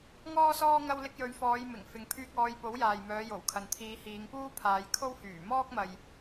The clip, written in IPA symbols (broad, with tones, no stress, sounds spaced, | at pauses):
ŋ ɔː˥ s ɔː˥ ŋ ɐ˧ w l ɪ˧ k̚ j ɵ˨˧ ɥ f ɔː˨˧ j m ɪ˨˩ ŋ f ɪ˨ ŋ pʰ yː˧ k̚ ɔː˨˧ j p o˨˥ w j aː˨ j m œː˨˧ j o˨˩ w kʰ ɐ˨ n t̪ʰ iː˨˧ h iː˨˧ ŋ p uː˥ pʰ aː˨˧ j kʰ o˥ w h yː˨˩ m ɔː˥ k̚ m ɐ˨ j